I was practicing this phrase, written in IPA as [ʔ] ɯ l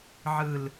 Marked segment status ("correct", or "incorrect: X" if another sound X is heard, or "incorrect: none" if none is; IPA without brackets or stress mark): incorrect: ʕ